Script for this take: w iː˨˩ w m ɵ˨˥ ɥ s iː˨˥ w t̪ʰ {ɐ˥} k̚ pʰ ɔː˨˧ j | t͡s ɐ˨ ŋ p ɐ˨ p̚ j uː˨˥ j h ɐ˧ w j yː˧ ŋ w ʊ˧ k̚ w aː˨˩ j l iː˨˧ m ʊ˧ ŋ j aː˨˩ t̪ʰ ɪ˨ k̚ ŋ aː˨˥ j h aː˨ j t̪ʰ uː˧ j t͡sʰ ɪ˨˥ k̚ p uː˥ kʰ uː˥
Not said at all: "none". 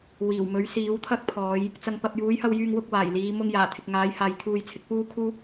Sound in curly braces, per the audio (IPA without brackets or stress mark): ɐ˥